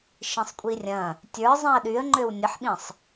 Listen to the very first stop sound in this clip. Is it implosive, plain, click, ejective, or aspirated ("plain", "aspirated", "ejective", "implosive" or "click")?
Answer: ejective